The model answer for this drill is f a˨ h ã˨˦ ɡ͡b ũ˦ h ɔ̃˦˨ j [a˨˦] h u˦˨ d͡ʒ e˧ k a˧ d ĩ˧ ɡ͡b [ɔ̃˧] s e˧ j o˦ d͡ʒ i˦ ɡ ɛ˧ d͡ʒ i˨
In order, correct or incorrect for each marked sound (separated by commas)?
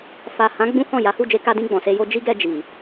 correct, incorrect